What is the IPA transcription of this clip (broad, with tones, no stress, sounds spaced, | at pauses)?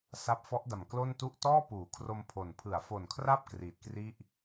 s a˦˥ p̚ f ɔ˦˥ ʔ d a˨˩ m k l o˥˩ n t u˥˩ ʔ t ɔː˥˩ p uː˩˦ kʰ r o˧ m pʰ o˨˩ n pʰ ɯ˩˦ a̯ f o˨˩ n kʰ r a˥˩ p̚ k r iː˨˩ t̚ k r i˥˩ ʔ